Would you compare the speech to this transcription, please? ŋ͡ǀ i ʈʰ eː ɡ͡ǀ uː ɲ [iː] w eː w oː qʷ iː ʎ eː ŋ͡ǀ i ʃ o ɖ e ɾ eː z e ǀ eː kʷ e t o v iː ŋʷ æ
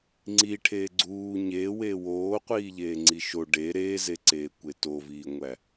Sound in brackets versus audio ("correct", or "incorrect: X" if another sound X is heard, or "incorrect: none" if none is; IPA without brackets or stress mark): incorrect: eː